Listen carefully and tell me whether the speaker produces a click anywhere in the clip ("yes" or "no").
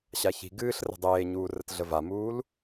no